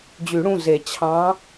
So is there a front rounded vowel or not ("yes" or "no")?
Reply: yes